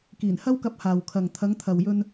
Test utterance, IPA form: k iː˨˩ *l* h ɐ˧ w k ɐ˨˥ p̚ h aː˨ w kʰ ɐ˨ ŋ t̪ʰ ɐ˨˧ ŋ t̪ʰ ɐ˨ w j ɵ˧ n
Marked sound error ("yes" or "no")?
yes